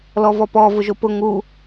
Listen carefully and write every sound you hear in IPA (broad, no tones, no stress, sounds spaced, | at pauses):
l ɔ v ɔ p ɔ v ʊ ʒ o p ʊ ŋ u